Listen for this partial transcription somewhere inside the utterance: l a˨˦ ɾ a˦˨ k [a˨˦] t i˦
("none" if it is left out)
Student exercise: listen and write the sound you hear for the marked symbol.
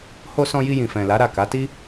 a˨˦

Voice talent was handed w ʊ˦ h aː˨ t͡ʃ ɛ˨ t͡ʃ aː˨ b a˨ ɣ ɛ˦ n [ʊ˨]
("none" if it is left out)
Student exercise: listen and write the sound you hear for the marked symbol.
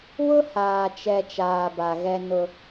ʊ˦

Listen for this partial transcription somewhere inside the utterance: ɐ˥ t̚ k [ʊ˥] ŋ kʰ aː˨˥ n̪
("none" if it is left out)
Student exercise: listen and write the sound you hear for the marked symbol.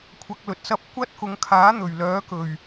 ʊ˨˧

